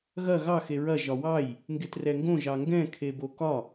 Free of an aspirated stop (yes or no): no